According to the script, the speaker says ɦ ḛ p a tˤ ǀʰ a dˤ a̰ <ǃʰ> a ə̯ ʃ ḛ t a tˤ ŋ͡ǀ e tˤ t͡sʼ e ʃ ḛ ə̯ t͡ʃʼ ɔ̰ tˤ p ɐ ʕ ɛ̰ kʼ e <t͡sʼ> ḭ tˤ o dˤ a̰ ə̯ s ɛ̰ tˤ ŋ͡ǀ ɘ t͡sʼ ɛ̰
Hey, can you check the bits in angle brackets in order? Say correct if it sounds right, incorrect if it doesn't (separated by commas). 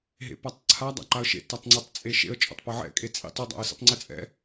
incorrect, correct